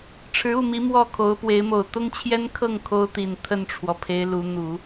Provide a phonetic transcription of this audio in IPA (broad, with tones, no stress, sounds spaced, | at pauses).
ʈ͡ʂʰ ɻ̩˧˥ u˥˩ m i˧˥ m w ɔ˥˩ kʰ o˧˥ ʊ̯ p w e˧˥ ɪ̯ m o˨˩ ʊ̯ t̪ ʊ˥ ŋ t͡ɕʰ j ɛ˥ n kʰ ɤ˥˩ ŋ kʰ o˥ ʊ̯ t̪ i˨˩ n t̪ʰ ə˥˩ n ʈ͡ʂʰ w ɔ˩ pʰ e˧˥ ɪ̯ l u˧˥ n̪ u˨˩˦